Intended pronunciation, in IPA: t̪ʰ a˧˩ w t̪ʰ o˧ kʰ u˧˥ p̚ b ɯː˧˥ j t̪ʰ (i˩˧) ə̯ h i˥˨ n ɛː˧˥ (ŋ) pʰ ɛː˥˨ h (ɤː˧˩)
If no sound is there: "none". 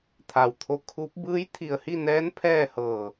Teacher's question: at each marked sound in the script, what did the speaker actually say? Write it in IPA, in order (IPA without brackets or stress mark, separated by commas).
i˧˩, n, ɤː˧˩